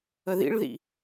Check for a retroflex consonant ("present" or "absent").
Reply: present